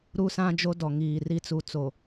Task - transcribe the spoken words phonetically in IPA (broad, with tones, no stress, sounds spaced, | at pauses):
ɾ u˦ s ã˦ d͡ʒ o˦ d ɔ˨ ŋ iː˨ r i˦ t͡s u˨ t͡s o˨